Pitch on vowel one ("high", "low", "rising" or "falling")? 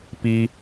low